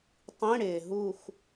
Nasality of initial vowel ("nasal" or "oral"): nasal